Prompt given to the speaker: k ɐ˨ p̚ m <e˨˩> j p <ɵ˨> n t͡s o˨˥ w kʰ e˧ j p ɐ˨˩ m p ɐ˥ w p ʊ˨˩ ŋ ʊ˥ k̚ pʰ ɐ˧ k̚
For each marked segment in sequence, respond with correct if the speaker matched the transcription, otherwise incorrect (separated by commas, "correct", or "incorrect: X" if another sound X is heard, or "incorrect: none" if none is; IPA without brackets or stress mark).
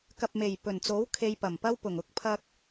correct, incorrect: ɵ˨˩